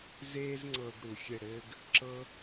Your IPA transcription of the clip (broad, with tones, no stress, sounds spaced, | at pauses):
z eː˥ z ŋ͡ǀ ɤ˧ ɡ ɽ u˩ xʲ ɘ˥˩ ɽ ɘː˥ ɡ | ǁ ɤ˥